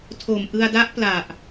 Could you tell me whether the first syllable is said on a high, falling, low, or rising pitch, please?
low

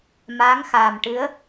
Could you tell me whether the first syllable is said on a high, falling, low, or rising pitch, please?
rising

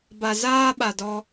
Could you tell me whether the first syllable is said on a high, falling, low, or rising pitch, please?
low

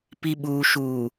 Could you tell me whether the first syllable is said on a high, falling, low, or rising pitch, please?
low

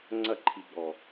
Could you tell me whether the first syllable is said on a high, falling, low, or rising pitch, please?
falling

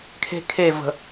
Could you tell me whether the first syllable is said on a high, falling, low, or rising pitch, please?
high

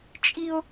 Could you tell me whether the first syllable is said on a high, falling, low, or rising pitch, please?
high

